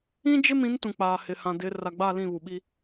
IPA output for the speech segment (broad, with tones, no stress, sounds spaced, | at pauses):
ĩ˦ d͡ʒ ɪ˦ m ĩ˨˦ n t ũ˨ k͡p aː˨ h ɪ˨ h ã˨ d ɪ˨˦ r a˨ ɡ͡b aː˦˨ l ĩ˦˨ β u˨ ɓ i˦